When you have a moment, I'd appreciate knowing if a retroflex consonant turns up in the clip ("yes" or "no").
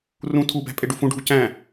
yes